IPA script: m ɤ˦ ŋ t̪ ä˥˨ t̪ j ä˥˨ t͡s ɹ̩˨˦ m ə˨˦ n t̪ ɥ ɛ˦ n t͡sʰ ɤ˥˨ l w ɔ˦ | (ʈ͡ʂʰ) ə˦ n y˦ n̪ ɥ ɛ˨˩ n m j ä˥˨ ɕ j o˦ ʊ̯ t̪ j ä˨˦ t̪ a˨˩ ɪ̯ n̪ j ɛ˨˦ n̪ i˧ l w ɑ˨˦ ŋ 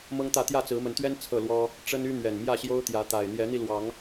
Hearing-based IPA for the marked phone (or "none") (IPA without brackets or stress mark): ʈ͡ʂ